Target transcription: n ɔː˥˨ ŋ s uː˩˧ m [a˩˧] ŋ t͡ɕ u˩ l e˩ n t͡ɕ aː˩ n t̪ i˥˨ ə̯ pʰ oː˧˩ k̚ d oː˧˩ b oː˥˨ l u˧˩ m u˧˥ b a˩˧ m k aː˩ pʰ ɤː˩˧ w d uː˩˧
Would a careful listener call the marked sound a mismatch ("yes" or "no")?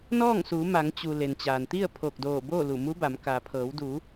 no